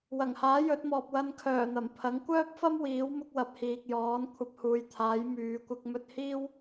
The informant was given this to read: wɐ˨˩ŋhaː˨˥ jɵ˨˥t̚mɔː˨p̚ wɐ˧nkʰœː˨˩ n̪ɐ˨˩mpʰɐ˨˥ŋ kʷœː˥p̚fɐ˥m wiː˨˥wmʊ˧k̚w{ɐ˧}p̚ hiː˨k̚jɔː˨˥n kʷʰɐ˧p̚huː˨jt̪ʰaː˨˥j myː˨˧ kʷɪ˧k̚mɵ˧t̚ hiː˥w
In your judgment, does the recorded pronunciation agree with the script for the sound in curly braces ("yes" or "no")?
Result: no